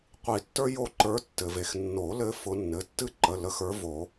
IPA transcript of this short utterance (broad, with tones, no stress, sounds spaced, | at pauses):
qʷ i˨˩˦ tː ə˞˥ j o˧˩ ǃ ə˞˨˦ tː ɘ˩ v e˩ x nː o˨˩˦ l ɘ˨˦ f ʊ˨˦ nː ɘ˩˧˩ tː ɨ˥ ǃ ə˩˧˩ l ə˨˦ x ə˞˨˦ v o˨˩˦